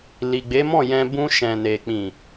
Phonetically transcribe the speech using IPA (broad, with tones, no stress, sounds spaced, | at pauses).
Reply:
l i˨ ɡ͡b e˨˦ m ɔ̃˦˨ j ɛ̃˧ b ũ˧ ʃ ɛ̃˨ n e˨ k͡p ĩ˨